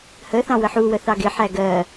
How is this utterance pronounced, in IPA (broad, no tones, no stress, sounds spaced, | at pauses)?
h ə θ ɑ̃ w ə ħ u w ə θ ɑ ɡ ɪ ħ æ ɡ ɜ